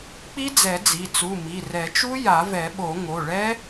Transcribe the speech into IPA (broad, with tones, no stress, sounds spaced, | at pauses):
k͡p i˦˥ d͡z ɛ˨˩˦ d͡z i˩˧˩ t͡s u˩˧˩ m i˩˧˩ r ɛ˨˩˦ t͡ʃ u˦˥ j a˨˩˦ v ɛ˨˩˦ ɓ o˨˩˦ ŋ o˩˧˩ ɭ ɛ˦˥